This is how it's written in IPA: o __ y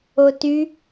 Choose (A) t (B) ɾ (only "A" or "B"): A